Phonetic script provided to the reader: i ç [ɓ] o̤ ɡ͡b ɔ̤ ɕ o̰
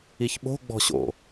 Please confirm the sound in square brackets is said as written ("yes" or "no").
yes